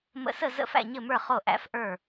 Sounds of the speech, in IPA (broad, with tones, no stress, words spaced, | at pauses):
mə̰˧˥sə˥˨ zə̰˥˨fæ̰˥˨ɲɘ˥˨mə˞˥˨ χo˥˨ʔæ̰˧˥fʔə˞˥˨